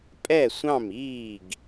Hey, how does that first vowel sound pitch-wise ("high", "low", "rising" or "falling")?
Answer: falling